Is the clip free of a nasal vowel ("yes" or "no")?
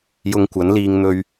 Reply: yes